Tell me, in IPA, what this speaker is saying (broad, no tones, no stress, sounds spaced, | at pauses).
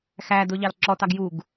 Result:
x æ d ʊ ʎ ɑ l ǁ ɔ t ɑ ɡ j u ɡ